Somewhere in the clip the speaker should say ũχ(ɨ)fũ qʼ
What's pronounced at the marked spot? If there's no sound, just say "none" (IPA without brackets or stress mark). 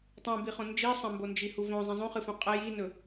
ɨ